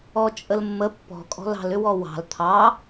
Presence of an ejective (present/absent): present